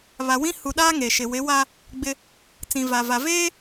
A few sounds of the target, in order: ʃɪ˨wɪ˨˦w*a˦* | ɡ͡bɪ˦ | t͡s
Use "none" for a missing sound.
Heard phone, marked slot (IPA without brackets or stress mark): a˦